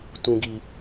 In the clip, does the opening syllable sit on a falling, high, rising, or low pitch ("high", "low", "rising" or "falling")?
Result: low